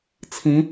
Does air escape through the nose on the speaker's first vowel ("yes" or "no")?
yes